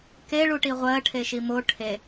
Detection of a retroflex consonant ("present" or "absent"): present